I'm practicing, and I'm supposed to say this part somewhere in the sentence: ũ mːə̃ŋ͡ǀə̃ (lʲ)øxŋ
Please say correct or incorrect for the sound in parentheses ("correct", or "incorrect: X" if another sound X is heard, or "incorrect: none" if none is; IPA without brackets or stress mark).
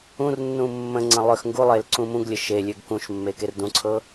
incorrect: lˠ